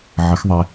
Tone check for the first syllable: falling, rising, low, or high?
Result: rising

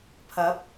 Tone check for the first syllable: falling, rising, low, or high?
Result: rising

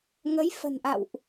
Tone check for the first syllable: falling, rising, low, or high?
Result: rising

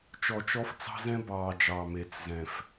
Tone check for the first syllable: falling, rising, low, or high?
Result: low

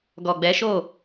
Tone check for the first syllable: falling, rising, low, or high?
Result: low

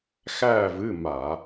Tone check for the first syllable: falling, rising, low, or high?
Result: falling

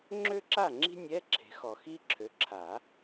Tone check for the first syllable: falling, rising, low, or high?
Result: high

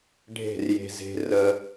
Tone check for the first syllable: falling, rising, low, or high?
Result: falling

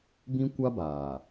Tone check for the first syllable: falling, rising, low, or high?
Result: high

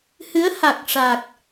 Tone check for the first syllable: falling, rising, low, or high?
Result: rising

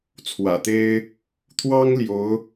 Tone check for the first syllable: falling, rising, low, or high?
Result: low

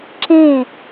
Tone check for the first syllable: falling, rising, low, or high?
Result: falling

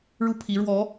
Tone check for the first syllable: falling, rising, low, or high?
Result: falling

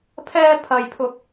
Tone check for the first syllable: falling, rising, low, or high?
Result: high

